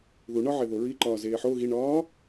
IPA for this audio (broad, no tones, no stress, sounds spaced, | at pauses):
ð u ɳ ɒ ʕ e ð o ɹ i ǃ ɒː z eː ħ o ɣ i ɳ ɒː